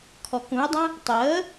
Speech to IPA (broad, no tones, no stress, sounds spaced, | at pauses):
kʰ ɔ k ũ ɪ̯ dˤ œ̃ | tˤ əː